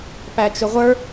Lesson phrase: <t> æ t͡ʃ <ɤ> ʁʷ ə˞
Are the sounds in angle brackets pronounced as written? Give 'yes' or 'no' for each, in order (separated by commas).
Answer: no, no